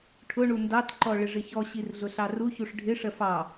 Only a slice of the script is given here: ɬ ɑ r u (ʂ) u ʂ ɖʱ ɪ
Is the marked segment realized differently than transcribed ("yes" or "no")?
yes